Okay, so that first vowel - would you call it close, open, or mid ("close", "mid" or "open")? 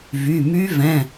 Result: close